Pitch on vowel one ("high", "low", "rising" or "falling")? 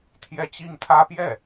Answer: high